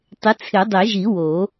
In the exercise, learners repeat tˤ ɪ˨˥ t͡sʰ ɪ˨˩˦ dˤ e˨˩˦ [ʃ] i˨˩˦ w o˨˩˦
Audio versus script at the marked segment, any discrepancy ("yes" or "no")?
yes